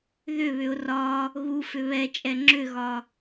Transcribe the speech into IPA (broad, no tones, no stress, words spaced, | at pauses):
ðʏβʏʊ̯ rɒ | ɣufʏ βɛt͡ʃʼɛ ŋ͡ǁʏɣɒ